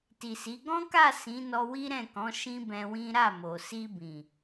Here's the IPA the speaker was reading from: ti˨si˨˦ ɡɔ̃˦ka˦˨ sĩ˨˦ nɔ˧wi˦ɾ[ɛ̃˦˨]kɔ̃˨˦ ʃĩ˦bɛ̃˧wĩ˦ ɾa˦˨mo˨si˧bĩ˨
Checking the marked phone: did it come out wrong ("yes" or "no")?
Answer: no